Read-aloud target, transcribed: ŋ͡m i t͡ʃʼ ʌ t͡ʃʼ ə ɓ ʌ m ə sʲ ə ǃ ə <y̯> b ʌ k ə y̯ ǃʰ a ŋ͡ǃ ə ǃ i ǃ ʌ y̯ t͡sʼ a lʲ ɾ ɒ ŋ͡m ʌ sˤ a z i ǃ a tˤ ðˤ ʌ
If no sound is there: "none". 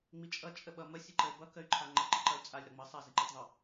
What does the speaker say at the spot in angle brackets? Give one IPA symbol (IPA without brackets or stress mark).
y̯